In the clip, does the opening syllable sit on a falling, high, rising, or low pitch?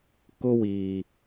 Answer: high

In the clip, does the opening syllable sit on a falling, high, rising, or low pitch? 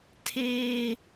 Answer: high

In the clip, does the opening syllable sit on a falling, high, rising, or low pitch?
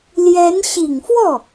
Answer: rising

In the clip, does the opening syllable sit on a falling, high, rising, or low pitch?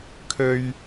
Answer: low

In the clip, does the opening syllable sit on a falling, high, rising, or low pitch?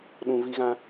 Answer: low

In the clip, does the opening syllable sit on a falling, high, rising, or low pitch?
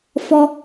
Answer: high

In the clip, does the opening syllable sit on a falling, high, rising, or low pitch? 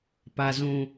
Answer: low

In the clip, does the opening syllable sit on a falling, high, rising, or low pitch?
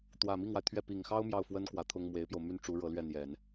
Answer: low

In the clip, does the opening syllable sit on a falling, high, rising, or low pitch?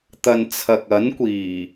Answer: low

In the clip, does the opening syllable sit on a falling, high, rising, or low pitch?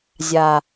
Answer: low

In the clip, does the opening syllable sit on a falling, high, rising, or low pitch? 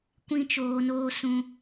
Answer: high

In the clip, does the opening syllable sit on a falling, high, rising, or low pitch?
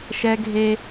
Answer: high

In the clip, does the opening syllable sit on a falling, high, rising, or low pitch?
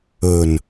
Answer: low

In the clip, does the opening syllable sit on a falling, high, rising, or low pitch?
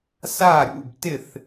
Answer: falling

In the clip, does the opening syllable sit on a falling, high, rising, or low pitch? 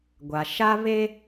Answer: low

